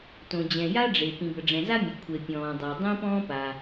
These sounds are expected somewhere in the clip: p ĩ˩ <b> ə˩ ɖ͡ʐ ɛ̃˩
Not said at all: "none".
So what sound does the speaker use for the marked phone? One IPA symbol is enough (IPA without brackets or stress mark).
b